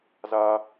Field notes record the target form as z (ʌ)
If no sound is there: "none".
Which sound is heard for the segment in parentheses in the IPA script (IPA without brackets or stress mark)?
a